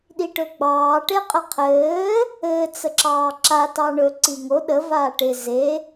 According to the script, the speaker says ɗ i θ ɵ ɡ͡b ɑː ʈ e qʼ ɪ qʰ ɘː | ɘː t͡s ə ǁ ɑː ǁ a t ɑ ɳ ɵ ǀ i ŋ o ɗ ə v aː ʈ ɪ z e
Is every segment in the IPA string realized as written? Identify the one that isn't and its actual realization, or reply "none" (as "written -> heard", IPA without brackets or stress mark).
θ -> ʈ